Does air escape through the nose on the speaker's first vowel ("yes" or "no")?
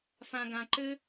yes